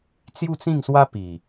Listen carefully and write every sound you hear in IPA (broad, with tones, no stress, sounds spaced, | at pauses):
t͡s j u˥˧ t͡s ĩ˥˧ ŋ s w a˦ p i˨˩